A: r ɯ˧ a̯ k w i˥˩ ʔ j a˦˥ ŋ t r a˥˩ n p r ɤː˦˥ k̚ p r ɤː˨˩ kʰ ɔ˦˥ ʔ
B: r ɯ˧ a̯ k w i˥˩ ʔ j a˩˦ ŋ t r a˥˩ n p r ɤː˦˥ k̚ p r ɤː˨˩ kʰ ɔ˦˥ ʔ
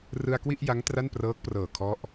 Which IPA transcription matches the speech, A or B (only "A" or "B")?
A